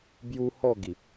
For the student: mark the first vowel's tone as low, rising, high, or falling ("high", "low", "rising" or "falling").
high